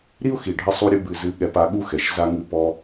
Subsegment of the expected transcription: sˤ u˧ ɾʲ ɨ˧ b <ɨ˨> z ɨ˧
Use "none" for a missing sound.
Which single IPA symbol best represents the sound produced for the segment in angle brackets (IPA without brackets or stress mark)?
ɨ˨